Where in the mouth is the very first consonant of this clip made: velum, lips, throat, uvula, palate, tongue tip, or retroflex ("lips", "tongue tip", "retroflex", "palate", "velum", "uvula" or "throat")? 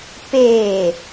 lips